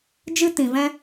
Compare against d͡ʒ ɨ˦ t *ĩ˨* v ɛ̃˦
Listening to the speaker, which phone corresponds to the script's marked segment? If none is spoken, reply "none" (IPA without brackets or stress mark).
ĩ˨